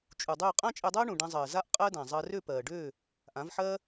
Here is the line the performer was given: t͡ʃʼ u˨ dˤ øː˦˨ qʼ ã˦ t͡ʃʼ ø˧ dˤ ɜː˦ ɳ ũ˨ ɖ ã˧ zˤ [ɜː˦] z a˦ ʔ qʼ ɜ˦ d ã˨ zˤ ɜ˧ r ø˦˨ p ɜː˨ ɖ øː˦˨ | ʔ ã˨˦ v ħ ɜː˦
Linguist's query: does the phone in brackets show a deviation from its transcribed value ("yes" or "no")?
yes